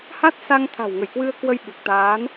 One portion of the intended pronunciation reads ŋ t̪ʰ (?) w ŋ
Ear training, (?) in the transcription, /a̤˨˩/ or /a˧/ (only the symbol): a̤˨˩